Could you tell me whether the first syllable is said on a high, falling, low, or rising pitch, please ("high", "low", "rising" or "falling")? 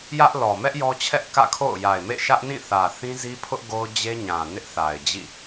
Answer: high